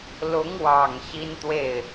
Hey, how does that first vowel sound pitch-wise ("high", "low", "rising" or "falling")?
rising